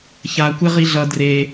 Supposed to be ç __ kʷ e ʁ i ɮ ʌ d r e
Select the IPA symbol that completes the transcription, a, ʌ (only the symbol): a